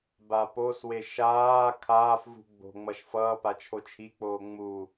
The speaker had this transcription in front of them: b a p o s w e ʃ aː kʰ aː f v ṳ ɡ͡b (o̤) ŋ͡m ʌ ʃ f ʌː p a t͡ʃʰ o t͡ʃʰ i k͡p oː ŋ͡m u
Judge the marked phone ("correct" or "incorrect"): correct